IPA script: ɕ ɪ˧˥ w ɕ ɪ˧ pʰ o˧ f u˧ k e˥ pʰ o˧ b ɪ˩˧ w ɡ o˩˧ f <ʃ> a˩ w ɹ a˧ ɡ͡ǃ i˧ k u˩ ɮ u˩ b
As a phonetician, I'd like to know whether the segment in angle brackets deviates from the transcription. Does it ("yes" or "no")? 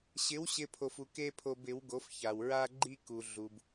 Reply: yes